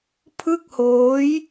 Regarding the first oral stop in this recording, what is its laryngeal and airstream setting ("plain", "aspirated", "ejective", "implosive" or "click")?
aspirated